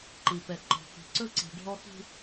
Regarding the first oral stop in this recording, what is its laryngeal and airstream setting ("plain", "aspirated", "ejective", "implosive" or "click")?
click